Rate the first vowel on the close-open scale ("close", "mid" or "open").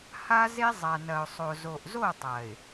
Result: open